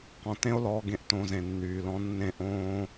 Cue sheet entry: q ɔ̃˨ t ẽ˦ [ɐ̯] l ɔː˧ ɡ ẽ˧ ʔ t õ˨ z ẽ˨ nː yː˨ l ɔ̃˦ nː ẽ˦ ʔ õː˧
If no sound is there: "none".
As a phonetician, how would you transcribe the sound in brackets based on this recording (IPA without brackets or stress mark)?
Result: o̯